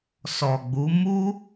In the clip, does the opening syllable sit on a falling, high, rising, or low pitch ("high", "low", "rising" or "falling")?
low